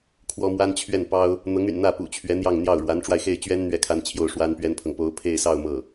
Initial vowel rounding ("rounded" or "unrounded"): rounded